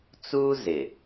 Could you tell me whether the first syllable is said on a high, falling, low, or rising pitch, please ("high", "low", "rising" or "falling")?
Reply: high